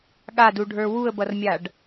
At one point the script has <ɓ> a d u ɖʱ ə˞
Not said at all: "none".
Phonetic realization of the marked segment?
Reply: ɠ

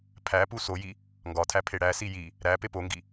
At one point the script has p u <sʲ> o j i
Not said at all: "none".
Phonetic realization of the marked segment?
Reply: s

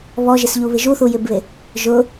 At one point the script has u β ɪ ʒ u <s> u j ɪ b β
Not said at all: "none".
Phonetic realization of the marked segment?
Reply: θ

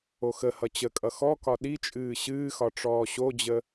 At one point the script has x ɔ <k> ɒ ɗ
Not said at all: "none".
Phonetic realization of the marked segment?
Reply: k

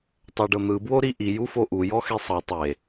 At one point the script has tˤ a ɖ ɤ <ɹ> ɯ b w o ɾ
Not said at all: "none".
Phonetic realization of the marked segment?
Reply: n̪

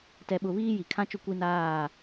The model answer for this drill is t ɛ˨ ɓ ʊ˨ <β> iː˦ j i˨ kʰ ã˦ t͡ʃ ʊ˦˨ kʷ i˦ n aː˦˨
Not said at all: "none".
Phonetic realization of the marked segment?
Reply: β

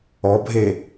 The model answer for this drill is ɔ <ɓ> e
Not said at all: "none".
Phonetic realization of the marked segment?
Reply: bʱ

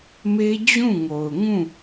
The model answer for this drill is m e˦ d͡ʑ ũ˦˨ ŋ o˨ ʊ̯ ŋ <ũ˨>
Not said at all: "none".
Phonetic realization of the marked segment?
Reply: ũ˦˨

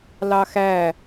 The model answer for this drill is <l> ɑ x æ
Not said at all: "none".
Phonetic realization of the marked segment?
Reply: l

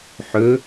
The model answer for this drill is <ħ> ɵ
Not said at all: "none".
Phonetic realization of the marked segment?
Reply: ħ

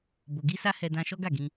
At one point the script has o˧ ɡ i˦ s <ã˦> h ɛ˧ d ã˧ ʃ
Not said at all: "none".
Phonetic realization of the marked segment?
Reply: a˦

